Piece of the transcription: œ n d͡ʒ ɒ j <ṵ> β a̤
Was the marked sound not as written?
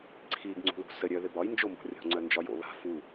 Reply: yes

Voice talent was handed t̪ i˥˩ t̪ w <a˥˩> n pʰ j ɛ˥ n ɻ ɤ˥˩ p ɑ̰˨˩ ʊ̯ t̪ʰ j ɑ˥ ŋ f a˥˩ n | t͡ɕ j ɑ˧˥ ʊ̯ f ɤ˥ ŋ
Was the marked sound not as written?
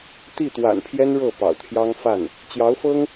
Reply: yes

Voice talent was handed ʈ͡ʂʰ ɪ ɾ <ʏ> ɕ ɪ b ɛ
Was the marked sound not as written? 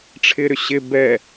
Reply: no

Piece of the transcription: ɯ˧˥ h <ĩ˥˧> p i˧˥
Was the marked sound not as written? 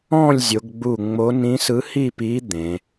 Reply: yes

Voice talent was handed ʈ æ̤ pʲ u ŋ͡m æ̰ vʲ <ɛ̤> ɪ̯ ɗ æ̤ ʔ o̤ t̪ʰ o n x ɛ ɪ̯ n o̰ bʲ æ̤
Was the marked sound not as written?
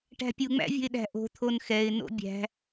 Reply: yes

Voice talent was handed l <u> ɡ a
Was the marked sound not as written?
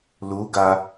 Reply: no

